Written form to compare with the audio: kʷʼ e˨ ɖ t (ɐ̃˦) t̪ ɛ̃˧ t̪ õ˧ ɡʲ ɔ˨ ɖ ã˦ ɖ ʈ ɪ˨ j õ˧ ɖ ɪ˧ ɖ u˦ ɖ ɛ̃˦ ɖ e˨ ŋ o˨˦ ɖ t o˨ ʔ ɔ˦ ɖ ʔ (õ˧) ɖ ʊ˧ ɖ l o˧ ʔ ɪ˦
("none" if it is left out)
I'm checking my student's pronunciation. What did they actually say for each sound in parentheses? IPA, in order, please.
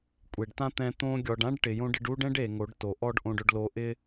ã˦, õ˧

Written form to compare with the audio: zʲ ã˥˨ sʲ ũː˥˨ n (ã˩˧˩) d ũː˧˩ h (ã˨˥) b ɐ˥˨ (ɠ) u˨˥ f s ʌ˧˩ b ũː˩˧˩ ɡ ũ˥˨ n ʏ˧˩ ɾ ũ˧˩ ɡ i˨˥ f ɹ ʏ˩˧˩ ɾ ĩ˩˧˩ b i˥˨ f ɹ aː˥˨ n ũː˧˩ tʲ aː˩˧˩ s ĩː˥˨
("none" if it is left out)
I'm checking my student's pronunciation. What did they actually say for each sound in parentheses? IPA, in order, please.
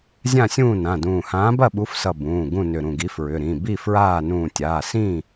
ã˩˧˩, ãː˨˥, ɓ

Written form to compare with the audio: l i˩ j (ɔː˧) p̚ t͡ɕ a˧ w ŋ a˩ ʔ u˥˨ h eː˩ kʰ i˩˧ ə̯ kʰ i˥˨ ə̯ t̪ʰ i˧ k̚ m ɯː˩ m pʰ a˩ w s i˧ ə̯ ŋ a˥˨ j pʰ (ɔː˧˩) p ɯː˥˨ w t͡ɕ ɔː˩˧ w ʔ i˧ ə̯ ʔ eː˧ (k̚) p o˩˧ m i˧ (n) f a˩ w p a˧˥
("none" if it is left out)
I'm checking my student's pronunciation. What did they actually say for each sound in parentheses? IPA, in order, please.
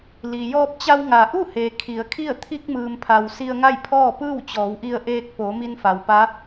ɔː˧, ɔː˥˨, k̚, n

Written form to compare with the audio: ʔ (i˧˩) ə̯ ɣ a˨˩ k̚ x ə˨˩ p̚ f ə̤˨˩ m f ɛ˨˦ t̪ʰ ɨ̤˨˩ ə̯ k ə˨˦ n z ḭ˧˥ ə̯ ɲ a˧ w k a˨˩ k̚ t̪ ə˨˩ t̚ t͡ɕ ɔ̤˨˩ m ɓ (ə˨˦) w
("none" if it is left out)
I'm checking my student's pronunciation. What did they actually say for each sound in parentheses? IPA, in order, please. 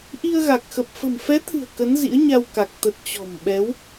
i˧, ɛ˨˦

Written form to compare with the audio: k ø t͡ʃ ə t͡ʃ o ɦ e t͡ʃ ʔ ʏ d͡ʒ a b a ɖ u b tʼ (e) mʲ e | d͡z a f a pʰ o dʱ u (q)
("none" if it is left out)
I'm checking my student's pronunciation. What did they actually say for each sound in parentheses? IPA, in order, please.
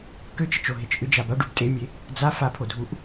e, ʔ

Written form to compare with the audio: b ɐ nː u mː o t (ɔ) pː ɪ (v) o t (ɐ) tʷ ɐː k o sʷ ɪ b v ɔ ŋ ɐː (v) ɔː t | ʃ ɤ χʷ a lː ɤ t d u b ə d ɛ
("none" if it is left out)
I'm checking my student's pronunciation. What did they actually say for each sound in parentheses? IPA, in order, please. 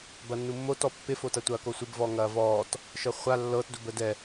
ɔ, f, ɐ, v

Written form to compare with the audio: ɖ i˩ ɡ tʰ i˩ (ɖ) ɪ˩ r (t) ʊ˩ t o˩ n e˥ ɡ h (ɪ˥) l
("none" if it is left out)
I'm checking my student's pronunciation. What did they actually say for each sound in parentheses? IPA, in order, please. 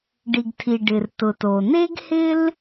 ɖ, t, ɪ˥

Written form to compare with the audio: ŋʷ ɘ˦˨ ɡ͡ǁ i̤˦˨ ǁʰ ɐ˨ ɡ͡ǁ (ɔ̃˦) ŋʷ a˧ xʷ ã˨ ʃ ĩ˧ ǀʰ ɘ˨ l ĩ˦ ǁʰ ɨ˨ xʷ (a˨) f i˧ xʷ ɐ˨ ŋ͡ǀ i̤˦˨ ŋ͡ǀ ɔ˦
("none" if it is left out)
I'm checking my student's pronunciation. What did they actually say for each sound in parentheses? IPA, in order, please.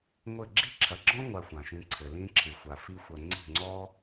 ɔ̃˦, a˨

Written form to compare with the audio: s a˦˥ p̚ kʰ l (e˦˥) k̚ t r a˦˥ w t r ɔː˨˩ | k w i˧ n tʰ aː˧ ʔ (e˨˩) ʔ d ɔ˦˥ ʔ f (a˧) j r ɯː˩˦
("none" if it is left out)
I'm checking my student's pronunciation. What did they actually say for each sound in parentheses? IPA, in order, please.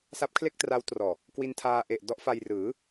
e˥˩, e˨˩, a˧

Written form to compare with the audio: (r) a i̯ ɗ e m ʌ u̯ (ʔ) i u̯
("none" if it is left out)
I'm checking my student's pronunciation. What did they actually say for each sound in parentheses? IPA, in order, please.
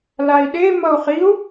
l, χ

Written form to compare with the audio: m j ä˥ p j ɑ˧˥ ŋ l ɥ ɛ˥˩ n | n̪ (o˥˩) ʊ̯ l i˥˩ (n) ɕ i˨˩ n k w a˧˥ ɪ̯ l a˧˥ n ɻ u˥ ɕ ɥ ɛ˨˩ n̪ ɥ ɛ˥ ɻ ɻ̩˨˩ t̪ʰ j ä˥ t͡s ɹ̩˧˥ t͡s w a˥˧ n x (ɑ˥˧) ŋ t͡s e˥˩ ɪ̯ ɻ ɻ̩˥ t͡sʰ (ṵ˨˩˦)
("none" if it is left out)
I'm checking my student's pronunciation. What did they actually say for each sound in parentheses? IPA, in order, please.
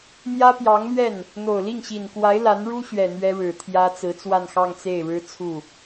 o˨˩, ŋ, ɑ˥˧, u˥˩

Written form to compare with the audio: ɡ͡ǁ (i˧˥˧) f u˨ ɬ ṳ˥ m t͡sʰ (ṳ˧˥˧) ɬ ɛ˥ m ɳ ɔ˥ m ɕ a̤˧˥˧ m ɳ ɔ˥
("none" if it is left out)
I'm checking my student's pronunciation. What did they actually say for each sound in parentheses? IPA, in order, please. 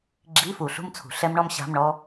i˧˥˧, ṳ˨

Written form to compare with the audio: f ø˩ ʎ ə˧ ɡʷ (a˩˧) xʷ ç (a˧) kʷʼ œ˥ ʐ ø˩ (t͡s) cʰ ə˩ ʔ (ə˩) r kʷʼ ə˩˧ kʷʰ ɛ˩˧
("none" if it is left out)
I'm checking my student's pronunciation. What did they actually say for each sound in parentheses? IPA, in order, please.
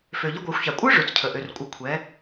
a˩˧, a˩, t͡s, ø˩

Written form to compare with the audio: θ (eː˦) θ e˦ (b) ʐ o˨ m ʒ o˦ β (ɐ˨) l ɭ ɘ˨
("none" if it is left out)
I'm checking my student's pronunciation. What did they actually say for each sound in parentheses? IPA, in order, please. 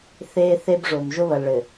eː˦, b, ɐ˨

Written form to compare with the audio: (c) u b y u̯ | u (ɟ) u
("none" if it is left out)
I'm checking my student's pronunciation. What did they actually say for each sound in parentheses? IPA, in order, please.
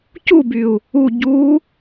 c, ɟ

